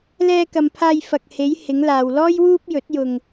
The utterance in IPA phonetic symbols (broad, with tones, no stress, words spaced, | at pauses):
lɛː˧kɐ˨mpʰaː˧j fɐ˨k̚ he˨˧j hɪ˨˧ŋlaː˨wlɔː˥j wuː˥p̚jɵ˨˥t̚jʊ˧ŋ